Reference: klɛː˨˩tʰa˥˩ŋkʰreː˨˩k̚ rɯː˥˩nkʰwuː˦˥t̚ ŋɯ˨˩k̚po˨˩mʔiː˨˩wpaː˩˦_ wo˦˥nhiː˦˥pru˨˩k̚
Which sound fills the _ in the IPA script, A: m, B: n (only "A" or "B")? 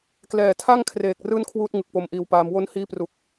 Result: A